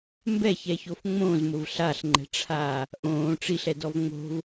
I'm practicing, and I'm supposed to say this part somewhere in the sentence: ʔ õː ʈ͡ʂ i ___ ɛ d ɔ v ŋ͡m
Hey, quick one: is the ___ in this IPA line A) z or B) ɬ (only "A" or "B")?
B